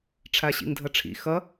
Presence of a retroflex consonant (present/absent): present